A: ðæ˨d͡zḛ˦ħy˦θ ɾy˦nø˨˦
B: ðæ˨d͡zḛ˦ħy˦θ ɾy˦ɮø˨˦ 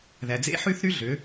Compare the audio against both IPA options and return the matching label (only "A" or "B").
B